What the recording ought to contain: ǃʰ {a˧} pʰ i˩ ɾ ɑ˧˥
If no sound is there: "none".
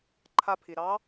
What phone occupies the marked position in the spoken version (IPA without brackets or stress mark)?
a˧